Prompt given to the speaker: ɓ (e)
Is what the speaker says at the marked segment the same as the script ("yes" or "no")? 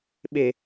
yes